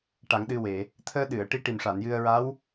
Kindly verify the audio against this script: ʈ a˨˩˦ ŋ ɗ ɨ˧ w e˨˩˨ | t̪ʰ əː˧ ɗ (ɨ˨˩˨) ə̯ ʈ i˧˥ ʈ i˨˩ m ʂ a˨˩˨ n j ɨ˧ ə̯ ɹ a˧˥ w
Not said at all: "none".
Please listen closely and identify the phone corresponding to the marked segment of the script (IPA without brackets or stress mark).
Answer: ɨ˨˩˨